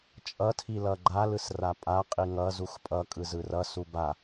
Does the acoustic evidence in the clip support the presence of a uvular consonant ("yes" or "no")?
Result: yes